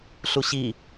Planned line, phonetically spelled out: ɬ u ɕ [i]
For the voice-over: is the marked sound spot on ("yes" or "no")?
yes